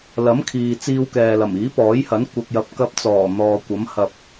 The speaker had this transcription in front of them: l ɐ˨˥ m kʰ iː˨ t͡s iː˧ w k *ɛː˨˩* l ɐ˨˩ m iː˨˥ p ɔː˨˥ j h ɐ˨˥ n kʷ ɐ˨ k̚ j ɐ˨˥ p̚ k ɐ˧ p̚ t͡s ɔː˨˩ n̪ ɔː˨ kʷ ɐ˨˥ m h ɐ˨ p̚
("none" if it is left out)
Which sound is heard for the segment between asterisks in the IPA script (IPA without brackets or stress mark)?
ɛː˨